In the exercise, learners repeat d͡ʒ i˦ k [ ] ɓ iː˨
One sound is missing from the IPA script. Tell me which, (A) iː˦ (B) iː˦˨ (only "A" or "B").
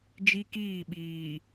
B